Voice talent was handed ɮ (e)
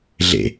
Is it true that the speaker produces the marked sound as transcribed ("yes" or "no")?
no